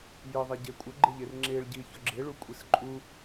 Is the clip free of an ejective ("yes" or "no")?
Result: no